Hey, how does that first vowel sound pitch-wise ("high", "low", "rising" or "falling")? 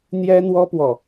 high